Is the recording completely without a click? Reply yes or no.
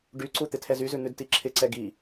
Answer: no